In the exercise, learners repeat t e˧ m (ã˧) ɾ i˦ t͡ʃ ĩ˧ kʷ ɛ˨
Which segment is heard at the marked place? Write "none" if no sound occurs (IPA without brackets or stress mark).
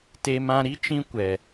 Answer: ã˧